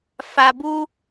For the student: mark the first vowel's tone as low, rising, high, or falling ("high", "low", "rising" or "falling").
low